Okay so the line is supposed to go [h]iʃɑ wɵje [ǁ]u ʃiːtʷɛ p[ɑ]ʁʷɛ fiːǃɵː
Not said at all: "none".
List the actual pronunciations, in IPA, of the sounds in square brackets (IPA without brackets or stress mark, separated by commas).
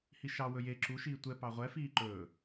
h, ǁ, ɑ